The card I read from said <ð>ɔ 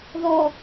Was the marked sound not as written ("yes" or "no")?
no